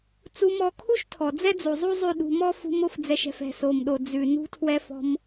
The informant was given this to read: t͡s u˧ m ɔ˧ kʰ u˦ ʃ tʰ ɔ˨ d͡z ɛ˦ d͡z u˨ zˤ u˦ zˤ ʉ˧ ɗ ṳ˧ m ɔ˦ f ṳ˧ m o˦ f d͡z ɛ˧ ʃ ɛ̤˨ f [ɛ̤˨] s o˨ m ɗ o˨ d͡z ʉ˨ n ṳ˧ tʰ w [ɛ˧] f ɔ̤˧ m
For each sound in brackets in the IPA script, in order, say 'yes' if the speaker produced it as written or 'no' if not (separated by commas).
yes, yes